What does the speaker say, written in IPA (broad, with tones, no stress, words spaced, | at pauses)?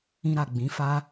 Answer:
ĩ˧ɾa˨ ɡ͡bĩ˨˦fa˦